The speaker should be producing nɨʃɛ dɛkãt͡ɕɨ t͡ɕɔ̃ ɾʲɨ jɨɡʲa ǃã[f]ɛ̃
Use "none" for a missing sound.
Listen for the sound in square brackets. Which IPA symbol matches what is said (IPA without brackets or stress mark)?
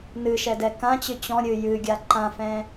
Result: f